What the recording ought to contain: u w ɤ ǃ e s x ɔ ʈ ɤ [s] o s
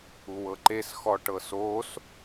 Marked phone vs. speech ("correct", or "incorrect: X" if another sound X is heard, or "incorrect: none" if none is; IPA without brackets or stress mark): correct